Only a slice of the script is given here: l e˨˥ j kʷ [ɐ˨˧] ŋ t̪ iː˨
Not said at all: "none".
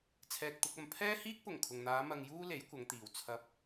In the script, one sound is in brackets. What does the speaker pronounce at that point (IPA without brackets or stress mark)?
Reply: ɐ˨˧